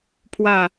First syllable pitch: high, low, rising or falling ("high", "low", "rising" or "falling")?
falling